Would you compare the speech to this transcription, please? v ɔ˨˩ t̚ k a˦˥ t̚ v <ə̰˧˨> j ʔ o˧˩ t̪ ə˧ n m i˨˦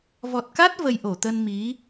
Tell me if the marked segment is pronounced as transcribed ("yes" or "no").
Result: no